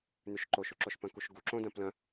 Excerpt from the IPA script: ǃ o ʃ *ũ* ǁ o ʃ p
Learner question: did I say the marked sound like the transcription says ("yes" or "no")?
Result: no